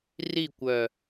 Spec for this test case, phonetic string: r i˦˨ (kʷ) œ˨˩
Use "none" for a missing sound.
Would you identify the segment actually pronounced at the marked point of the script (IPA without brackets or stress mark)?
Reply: kʷ